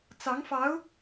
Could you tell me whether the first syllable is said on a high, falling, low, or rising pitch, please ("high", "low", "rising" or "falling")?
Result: rising